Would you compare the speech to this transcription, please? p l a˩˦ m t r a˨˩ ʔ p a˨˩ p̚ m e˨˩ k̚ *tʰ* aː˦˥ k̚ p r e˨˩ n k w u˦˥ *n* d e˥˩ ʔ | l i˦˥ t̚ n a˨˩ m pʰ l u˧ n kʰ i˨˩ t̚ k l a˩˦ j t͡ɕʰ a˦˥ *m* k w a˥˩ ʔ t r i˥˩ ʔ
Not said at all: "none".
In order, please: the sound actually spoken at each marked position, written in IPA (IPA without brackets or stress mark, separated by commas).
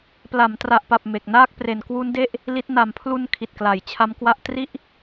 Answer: n, n, m